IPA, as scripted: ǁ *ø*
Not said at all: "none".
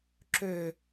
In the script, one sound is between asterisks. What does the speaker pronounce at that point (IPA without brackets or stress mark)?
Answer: ø